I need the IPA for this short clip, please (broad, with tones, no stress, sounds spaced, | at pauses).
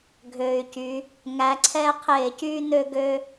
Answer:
ɡʱ øː˨˩ y̯ c y˨˦ | ŋ æ˨˦ ǀʰ ɛː˦ qʰ eː˧˩˧ c yː˦ n̪ ø˦ ɡ ø˦